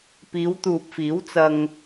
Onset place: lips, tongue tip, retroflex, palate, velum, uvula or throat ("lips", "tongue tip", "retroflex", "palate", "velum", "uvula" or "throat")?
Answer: lips